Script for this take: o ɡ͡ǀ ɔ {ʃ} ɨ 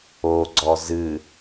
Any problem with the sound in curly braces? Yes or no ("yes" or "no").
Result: yes